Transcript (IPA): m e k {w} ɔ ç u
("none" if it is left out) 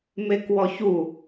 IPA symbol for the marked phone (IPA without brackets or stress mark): w